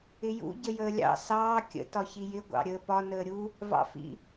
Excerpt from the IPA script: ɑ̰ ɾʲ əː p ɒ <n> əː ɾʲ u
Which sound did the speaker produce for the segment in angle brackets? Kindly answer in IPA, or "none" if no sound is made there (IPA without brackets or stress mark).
n